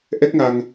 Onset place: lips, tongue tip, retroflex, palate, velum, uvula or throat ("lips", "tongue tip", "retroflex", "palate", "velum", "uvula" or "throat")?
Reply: throat